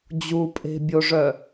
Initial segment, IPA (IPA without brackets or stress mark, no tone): d͡ʑ